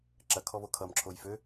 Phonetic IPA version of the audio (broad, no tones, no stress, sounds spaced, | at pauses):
ǁ ɐ kʰ ɔ β o kʰ ʌ m ǁʰ o j f ø